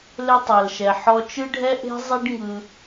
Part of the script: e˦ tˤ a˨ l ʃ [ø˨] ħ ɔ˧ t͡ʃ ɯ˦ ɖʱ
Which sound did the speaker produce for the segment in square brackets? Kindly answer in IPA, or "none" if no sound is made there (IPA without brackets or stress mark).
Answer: ɛ˨